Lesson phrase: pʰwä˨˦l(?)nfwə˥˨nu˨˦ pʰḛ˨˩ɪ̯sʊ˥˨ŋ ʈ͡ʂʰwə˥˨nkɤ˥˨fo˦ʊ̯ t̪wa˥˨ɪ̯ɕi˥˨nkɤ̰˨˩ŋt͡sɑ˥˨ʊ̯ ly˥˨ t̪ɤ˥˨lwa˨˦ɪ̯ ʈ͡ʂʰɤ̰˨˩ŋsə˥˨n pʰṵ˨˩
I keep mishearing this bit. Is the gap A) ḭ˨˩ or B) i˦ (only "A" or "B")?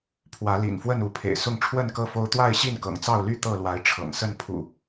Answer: A